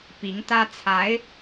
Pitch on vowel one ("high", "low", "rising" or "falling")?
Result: rising